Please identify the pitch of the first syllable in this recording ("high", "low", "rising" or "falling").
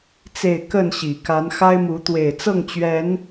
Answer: falling